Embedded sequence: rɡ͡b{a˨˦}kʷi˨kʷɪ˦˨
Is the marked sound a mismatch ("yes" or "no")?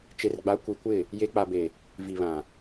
no